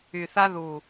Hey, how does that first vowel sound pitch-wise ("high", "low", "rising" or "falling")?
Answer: low